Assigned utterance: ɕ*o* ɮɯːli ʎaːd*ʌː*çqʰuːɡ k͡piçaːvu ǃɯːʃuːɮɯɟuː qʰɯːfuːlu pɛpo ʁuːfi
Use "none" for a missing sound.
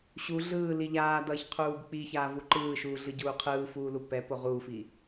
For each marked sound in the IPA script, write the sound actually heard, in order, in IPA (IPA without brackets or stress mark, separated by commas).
u, ʌː